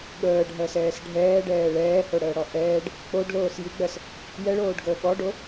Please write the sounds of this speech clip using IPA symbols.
ɠ əː ɖʱ ɜ s ɛː s ɖʱ ɛː ɖ ɛː ɭ ɛː h o ɽ əː ɽ ɔ ʔ ɛː ɖ | k͡p o ɖ l oː s j i ɡ͡b ɜ s | j ɛ ɭ oː ɖ ɡ əː ɠ ɔ ɖ o

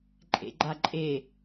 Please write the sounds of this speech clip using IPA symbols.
ǃʼ ḛ ɡ͡ǃ a ǃʼ e

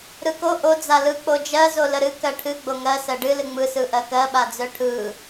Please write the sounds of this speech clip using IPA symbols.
ɾ ɯ k o ʔ o d͡z a l ɯ k͡p o d͡ʒ ɜ z o l ə ɾ ɨ k ɜ ʈʰ ɨ ɡ͡b o ŋ ɜ s ɜ ɖ ɨ l ɨ ŋ͡m ɯ s ɯ ʔ ɜ k ɜ ɓ a d͡z œ ʈʰ ɯ

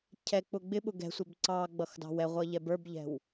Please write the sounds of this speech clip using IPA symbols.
cʰ ɛ k͡p ʊ ɡ͡b ɪ ɓ ʊ ɡ ɛ̤ sʷ ɛ b ǀ ɑ ɡ͡b ʌ x d ɑ̤ w ɛ ʁʷ ʌ ʎ ɛ b ə˞ b ʎ ɛ̤ w

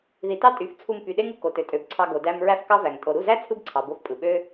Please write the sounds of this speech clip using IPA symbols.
ð i˨˦ t ɑ˦ tʼ y˨˦ f t͡sʰ u˧ m p y˨ ɗ e˦ ŋ ɯ˧ k o˨ t ø˨ tʼ ø˨ b ǀʰ ɑ˧ ɡ o˨ d æ˧ m ɹ æ˦ f k ɑ˦ v æ˨ ŋ tʼ o˨ ɾ u˦˨ z æ˦ t͡sʰ ɯ˦ b ǀʰ ɑ˨ b o˧ f pʼ ɯ˨ ɓ ø˦

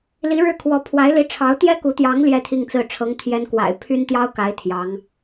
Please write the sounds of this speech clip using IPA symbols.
l i˧˥ ɻ ɻ̩˥˩ kʰ w ɔ˧˥ pʰ w a˧˥ ɪ̯ l i˧˥ ʈ͡ʂʰ ɑ˧˥ ʊ̯ t̪ j ɛ˥ k u˧˥ t̪ j ɑ˧˥ ŋ l j ɛ˥ t̪ʰ i˥˧ ŋ t͡s ɹ̩˥˩ ʈ͡ʂʰ ɤ˧˥ ŋ t̪ʰ j ɛ˧˥ n k w a̰˨˩ ɪ̯ pʰ y˥ n t̪ j ɑ˥ ʊ̯ k a˧˥ ɪ̯ t̪ʰ j ɑ˧˥ ŋ

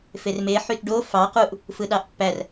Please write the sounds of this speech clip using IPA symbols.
f e r m e ħ y t ɖ o f ɑ q u ʔ | f ɯ ɗ ɑ ʔ pː æ r

